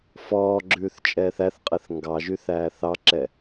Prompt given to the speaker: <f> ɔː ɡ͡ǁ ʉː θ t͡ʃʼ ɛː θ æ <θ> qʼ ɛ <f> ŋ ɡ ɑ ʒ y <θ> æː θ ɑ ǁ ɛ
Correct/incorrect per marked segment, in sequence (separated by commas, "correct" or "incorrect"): correct, correct, incorrect, correct